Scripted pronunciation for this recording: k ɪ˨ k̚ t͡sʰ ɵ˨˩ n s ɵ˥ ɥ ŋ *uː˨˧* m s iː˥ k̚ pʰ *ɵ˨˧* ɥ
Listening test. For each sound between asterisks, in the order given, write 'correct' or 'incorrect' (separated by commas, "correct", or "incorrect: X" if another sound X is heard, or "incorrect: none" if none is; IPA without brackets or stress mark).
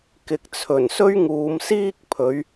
correct, correct